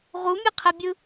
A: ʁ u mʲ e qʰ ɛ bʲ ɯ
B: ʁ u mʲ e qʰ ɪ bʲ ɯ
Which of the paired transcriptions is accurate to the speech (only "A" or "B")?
A